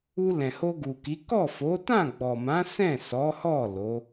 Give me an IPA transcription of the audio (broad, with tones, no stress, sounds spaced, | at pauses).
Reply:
u˧ l ɛ̃˨ h o˧ ɡ u˨ k i˨˦ k ɔ˦˨ f o˨˦ t ã˦˨ ɡ͡b ɔ˨ m ã˨˦ s ɛ̃˦˨ s ɔ˨˦ h ɔ˦˨ l o˨˦